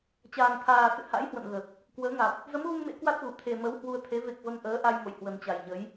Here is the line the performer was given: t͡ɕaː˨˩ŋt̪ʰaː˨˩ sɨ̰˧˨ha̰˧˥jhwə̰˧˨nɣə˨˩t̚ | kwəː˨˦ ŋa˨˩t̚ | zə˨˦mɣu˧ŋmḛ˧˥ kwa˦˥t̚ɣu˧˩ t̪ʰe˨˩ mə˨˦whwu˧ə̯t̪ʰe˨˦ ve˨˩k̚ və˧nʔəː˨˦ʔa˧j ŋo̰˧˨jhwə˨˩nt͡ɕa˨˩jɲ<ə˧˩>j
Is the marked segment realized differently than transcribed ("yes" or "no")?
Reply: yes